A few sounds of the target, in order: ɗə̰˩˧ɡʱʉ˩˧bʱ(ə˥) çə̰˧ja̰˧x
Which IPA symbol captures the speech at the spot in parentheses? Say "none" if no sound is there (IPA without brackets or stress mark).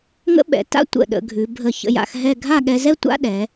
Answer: ə˧˩